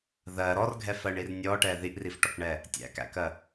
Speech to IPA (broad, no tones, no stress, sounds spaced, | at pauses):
ð ɜ ɾ ɔ r ɡʱ ɛ f ɜ ɳ i r nʲ ɔ ʈ ɛ ð i ʔ r i f ʈ ɔ k ɳ ɛ | tʲ æ̰ k æ̰ k ɜ